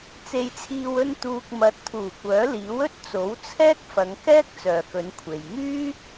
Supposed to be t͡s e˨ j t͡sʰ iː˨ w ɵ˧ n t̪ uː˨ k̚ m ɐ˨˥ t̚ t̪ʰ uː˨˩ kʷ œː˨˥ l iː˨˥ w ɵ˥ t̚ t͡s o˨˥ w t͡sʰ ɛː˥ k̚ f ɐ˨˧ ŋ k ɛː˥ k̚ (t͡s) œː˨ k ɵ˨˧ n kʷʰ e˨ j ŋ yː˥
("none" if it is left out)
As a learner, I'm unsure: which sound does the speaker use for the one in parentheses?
t͡s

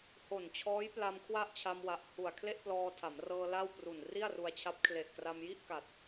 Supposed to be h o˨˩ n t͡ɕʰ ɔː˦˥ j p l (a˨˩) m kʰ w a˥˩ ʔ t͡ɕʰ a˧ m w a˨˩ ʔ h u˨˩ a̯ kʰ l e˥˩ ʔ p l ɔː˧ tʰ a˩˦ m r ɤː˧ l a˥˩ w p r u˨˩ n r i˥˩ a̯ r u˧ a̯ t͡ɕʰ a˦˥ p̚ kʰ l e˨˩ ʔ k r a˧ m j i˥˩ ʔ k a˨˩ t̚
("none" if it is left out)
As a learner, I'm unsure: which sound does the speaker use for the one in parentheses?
a˧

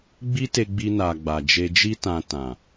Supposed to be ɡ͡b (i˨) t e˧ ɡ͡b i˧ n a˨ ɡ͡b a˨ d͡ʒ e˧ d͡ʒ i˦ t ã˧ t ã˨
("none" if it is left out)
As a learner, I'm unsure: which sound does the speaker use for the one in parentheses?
i˦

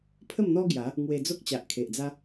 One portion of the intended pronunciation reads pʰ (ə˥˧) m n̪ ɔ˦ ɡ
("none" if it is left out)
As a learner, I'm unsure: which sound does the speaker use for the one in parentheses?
ə˥˧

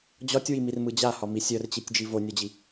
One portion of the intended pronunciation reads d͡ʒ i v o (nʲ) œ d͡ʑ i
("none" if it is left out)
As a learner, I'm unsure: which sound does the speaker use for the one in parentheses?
nʲ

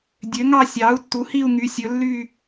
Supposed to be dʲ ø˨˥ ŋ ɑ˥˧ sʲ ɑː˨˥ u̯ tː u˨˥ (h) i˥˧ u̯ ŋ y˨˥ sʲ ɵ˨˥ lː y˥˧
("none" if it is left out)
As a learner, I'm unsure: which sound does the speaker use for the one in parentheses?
h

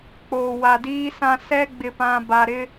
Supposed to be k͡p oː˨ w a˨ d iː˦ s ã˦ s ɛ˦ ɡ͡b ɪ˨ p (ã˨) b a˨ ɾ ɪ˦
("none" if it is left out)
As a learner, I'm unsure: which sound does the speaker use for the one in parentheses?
ã˨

